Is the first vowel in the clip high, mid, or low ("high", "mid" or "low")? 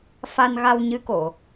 low